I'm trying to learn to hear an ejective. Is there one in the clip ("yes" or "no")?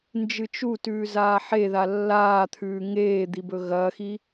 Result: no